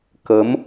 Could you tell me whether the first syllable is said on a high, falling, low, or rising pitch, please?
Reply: rising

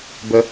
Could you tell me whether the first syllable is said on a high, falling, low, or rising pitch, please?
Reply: low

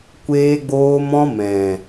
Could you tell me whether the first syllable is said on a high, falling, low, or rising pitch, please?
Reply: high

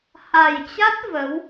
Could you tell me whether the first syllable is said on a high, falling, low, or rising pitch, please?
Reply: low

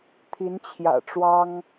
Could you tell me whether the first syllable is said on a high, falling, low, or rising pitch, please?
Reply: rising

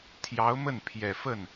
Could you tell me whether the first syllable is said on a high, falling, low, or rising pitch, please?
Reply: rising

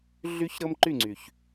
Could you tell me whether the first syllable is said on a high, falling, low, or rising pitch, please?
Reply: high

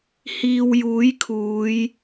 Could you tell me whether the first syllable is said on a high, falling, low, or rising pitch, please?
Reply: low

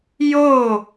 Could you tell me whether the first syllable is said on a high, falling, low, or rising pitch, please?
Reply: falling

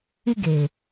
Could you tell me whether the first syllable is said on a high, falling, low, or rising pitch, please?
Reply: high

